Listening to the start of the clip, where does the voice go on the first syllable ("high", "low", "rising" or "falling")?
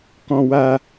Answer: high